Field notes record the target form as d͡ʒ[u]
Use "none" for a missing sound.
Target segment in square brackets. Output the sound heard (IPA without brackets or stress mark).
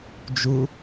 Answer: u